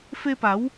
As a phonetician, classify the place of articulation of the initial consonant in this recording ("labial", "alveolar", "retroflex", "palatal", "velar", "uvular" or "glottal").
labial